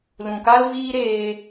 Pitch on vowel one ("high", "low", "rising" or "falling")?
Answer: low